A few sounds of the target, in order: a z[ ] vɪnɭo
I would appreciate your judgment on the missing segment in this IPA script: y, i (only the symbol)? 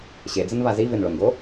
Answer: i